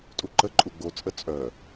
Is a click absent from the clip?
no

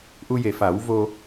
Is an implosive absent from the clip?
yes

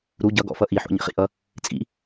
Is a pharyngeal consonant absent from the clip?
no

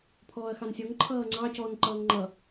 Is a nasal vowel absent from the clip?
yes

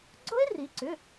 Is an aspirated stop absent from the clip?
yes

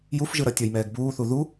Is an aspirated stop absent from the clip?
yes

